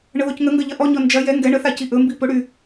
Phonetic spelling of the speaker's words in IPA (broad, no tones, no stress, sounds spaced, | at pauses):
ɳ ə ð o c ŋ ə ŋ ɡ ɐ ʎ ɐ ʔ ɔ ɲ ɔ n d͡ʒ ɐ j ɛ ŋ ɡ ɛ ɳ ə θ a c i ʔ ɵ m b i p ɵ ɽ y